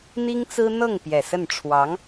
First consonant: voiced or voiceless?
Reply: voiced